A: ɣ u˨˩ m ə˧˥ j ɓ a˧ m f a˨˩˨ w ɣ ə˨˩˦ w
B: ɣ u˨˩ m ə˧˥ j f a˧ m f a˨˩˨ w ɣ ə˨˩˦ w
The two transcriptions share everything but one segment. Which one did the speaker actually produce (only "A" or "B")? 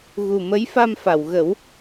B